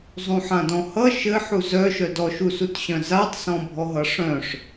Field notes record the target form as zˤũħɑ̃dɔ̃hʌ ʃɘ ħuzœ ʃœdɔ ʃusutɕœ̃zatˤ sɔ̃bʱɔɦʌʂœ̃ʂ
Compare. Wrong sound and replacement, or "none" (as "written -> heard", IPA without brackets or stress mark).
ɑ̃ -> ã